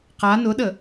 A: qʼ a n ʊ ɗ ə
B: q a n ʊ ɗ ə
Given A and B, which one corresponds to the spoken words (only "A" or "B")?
B